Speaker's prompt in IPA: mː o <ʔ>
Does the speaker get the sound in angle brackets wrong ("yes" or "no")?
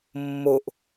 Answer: no